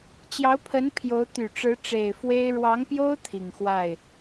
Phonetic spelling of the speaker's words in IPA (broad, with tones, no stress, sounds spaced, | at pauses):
t͡ɕ j ɑ˧˥ ʊ̯ pʰ ə˧˥ n pʰ j o˧˥ ʊ̯ t̪ y˨˩ ʈ͡ʂ ɻ̩˧˥ ʈ͡ʂ e˨˩ ɪ̯ f w e˥ ɪ̯ ɻ w ɑ˧˥ ŋ p j o˥ ʊ̯ t̪ʰ i˨˩ ŋ x w a˥˩ ɪ̯